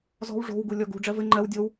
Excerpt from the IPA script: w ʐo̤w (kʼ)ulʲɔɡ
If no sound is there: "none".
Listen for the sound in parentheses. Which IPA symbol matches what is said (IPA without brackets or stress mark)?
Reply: ɡ